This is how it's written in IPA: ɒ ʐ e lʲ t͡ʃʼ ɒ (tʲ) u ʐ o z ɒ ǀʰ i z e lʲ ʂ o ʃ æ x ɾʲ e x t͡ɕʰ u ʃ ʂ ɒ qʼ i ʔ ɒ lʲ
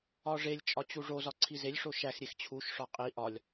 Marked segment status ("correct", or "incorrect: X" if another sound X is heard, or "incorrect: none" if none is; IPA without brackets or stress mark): incorrect: t͡ɕ